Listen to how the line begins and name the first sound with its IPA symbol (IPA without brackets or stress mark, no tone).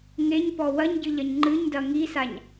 ŋ